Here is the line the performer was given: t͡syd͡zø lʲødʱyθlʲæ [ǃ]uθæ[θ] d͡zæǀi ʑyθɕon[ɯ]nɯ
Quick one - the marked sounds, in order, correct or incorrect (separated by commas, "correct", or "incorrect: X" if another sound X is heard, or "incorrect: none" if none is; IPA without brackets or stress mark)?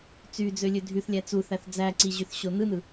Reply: incorrect: t͡s, correct, correct